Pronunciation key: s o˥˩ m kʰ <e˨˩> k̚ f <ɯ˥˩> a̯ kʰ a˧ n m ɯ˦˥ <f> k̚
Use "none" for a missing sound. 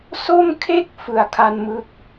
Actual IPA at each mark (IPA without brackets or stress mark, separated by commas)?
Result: e˥˩, ɯ˨˩, none